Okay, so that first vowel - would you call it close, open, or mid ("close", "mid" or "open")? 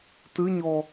close